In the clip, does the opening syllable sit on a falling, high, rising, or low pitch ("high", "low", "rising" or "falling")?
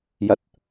low